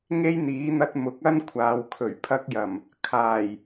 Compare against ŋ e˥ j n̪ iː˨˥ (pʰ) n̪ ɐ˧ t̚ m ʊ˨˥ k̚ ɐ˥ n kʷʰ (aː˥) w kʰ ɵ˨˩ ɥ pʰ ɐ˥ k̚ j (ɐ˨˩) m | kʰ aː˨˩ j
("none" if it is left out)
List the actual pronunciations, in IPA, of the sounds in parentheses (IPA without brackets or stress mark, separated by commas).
none, aː˨, ɐ˨˩